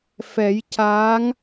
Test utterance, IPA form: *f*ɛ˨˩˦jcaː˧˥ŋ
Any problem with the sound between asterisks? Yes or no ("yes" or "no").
no